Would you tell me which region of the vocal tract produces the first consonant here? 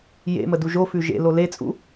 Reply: palate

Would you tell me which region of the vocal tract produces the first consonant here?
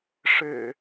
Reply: retroflex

